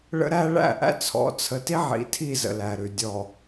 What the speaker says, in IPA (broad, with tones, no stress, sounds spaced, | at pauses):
ɭ ə̰˦ ɾ æ˦ ɭ æ̰˦˨ ʔ æ̰˦ t͡sʰ ɔ̰˨˦ t͡sʰ ə˨ t i˦ ʕ ḭ˨ tʰ i˦˨ z ə̰˨ l æ˨ ɾ ʉ˨ dʲ ɔ˨